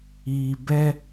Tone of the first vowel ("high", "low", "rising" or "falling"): low